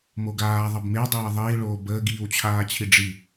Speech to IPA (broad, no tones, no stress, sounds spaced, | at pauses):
m o ɡ aː ðˤ ʌ b m e w dˤ e w ə ðˤ iː ɭ oː b əː ɡ iː w t͡ɕʰ aː t͡ɕʰ i ɖ͡ʐ i